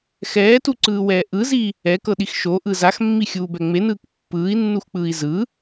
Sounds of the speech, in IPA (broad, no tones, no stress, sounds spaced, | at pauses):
x ɛː t u ǀ ɯː w ɛː ʔ ɯ z i | ɛ k ɤ ɗ i x ʃ o ʔ ɯ z a x mː i xʲ uː b ɛ ŋ͡m e n ɯː k pː ɯː i̯ nː u x k͡p ɯː i̯ z ɯ